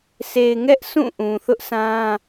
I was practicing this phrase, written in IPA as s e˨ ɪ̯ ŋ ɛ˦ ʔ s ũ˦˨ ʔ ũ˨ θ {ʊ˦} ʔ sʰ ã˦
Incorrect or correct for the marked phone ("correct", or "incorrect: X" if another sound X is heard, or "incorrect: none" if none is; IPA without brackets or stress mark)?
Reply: correct